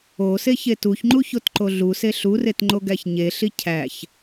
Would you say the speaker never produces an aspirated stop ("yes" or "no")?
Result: no